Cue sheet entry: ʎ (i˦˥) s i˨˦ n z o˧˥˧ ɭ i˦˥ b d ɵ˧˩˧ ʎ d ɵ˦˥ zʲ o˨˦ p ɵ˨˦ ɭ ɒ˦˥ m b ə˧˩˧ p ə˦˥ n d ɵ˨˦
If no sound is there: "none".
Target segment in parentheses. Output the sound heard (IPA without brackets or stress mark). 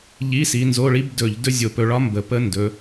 i˧˥˧